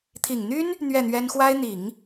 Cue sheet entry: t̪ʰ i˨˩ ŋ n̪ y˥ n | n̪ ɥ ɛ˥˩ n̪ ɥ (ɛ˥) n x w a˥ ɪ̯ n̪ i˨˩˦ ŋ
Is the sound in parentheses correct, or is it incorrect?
correct